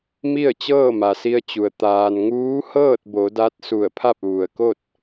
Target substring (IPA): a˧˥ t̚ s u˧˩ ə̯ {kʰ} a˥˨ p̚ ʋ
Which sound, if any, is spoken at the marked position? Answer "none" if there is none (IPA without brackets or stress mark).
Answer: pʰ